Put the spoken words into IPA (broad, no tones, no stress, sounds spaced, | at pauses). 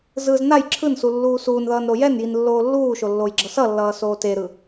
z ɯ z n a j ǁʰ ɯ n s u lː uː s uː n ð ʌː n ɾ o j ɛ n j i n lː oː lː uː ʃ o lː o j ɡ͡ǁ ʌ s ʌ lː ʌː s oː t e ɾ ɯ